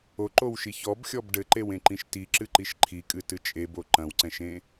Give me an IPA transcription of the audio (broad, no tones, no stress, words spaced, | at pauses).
oǃowʃi çɔbxʲɔb ɖɘǃewẽǃĩʃ tiǁɨǃiʃ ǃʰikʼɨtɨ t͡ʃʼebo ǃɐ̃wǀɛ̃ʃẽ